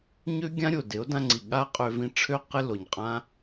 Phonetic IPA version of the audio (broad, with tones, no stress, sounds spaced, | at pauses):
ɲ ø˦ ɡʲ ã˦ ɾʲ o˨ d ɪ˨˦ o̯ d ã˧ ŋ͡ǀ i˨ ɠ a˦ qʼ ø˧ v ĩ˧ ʈ͡ʂʰ ø˦ q ɪ˦ l o˨ ɲ qʼ ã˦